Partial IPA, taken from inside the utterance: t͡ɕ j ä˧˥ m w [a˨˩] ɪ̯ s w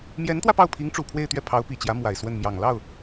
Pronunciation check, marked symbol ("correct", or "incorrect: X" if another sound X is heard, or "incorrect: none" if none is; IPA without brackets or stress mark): correct